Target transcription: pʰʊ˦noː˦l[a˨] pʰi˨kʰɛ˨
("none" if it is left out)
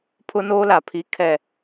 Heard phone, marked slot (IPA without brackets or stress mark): a˨